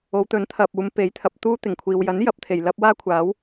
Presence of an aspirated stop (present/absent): present